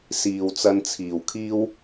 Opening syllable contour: low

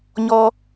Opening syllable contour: high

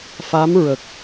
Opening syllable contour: rising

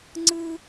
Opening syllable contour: high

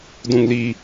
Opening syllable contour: high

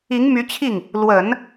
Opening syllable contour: rising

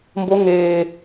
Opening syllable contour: rising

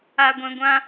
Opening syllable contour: low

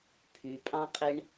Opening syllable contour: low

